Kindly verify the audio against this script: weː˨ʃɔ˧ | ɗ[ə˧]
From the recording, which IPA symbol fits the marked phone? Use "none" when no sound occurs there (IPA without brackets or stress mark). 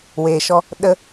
ə˧